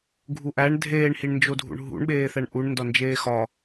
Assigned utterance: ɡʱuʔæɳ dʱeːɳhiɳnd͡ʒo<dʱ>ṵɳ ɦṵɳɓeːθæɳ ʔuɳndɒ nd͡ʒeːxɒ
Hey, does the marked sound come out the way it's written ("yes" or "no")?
yes